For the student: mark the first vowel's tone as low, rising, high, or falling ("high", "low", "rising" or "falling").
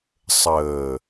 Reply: low